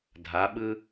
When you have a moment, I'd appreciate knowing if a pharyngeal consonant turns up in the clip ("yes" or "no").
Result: no